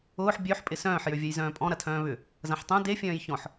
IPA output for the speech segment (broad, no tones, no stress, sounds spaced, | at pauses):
ʊː ħ bʲ ø ħ pʼ ɪ s œ̃ː ħ j ø vʲ ɛ j z œ̃ː pʼ ɔ̃ ɾ ɐ tʰ œ̃ː β ʏ | z ɐ̃ ħ tˤ œ̃ d e fʲ œ̃ː j ç ɔ̃ ħ